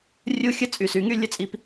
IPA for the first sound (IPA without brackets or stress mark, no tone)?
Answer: rʲ